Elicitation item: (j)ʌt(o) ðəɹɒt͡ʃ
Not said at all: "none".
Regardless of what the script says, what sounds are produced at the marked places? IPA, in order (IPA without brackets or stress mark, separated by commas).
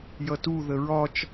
j, u